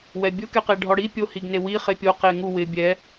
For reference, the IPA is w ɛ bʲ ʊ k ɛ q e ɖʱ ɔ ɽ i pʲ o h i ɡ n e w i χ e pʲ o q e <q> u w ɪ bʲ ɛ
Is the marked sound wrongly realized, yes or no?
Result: yes